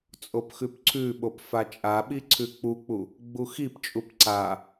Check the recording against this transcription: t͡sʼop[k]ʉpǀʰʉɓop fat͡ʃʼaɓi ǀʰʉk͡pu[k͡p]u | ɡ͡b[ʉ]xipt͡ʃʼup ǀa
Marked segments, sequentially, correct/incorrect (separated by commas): incorrect, correct, incorrect